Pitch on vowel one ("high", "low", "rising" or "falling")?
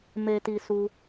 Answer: low